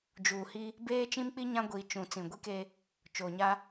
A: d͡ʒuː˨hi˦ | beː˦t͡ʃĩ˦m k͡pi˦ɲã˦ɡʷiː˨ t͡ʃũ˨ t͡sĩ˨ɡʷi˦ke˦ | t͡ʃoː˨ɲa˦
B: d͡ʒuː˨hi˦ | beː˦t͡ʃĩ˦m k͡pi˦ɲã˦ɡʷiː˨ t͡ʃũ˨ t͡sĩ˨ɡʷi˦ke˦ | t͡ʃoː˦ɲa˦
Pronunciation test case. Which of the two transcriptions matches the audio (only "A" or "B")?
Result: A